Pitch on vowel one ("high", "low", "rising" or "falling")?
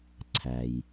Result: low